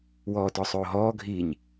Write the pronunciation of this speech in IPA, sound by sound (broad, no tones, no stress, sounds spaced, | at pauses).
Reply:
w ɔː t ɔ sˤ oː ɦ ɔː ɡʱ iː ɲ